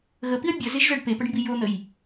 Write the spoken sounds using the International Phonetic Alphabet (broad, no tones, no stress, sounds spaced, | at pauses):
ɣ ə p i ɐ̯ bʲ ʌ z e ʒ z ʌ ɖ p e p ʌ ɖ m b i j o n̪ ə j